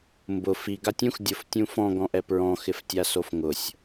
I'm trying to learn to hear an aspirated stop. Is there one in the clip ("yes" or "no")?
no